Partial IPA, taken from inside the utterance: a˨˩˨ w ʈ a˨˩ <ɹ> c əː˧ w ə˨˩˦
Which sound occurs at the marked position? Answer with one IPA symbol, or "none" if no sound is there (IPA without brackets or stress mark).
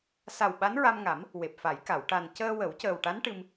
n